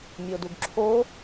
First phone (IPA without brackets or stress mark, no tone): mʲ